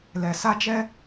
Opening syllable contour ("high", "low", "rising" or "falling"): low